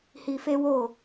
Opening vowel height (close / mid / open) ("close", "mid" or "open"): close